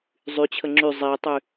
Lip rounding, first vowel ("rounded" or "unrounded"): rounded